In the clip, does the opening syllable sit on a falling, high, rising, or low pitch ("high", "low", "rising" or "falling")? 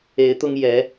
rising